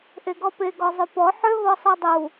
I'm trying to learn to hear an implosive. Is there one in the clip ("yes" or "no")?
no